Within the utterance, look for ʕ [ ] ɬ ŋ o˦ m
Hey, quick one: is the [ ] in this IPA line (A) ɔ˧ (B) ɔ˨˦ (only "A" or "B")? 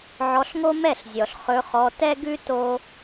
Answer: A